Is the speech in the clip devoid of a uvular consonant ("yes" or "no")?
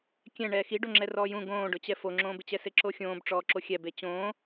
yes